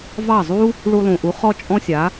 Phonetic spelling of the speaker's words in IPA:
v ɑ˥˩ zˤ u˥ | ɭ u˧ lˠ ũ˩ ʔ u˩˥ χ ɔ˥ t͡ʃʼ ɔ̃˥ sʲ a˩˥

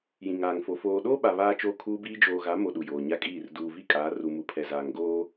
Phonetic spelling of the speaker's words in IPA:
j ĩ˨ ŋ aː˨ ŋ f o˨ f oː˨ ɗ oː˦ ɓ a˨ β aː˦ t͡ʃ oː˦ kʰ uː˦ b iː˦ d͡ʒ oː˨ ɣ a˨˦ m o˨ ɗ u˨ j oː˨ ɲ a˦˨ kʼ iː˦˨ r d uː˨ v i˦ kʼ aː˨˦ r u˨ m u˨ pʰ ɛ˨ z aː˨ ŋ ɡ oː˦

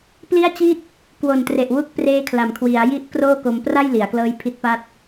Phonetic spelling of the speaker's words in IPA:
p l i˥˩ a̯ t͡ɕ i˥˩ t̚ | k w o˨˩ n t r e˨˩ ʔ w u˦˥ k̚ p r eː˦˥ kʰ l a˩˦ m kʰ w i˩˦ a̯ j i˥˩ ʔ k r oː˥˩ k o˧ m p r a˥˩ j l i˩˦ a̯ k l ɤː˦˥ j pʰ i˦˥ t̚ p a˥˩ t̚

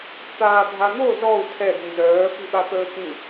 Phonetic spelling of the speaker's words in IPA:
t̪ aː bʱ a n̪ o z ɔ u̯ tʰ ɛ d̪ ĩ z œː p i ɓ a t̪ əː k ĩ

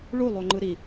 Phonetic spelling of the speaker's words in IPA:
ɭ u lˠ o ŋ͡ǃ ɯ ɾ i

